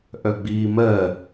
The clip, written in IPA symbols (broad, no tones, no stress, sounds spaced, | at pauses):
ʔ œ ɡ͡b iː m ɜ